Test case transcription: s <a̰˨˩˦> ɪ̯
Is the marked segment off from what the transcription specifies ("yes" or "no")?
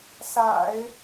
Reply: no